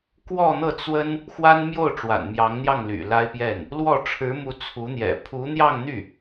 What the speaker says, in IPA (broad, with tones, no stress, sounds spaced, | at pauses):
k w ɔ˥˧ n̪ ɤ˥˩ t͡s w ə˥ n | x w a˥ n m j o˥˩ ʊ̯ ʈ͡ʂ w a̰˨˩ n m j ɑ˧˥ ŋ n̪ j ɑ˥˩ ŋ l y̰˨˩ l a˥ ɪ̯ p j ɛ˥˩ n | l w ɔ˥˩ ʈ͡ʂʰ ɻ̩˧˥ m u˧˥ t͡sʰ u˧˥ n̪ j ɛ̰˨˩ pʰ u˧˥ n̪ j ɑ˥˧ ŋ n̪ y˥˩